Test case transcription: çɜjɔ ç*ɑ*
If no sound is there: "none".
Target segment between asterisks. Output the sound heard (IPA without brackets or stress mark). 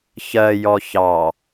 ɑ